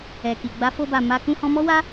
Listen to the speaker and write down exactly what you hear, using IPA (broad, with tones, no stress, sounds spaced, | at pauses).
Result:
ɛ˨ k i˨ ɡ͡b a˨˦ f o˧ b a˨ m a˧ k ũ˧ h ɔ̃˧ m ɔ˦ w a˦